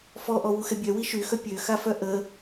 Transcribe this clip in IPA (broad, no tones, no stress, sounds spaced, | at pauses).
f ɔ ʔ ɔ w u x ɛ bʲ œ w i ʃ y x œ pʲ ø x a f œ ʔ ə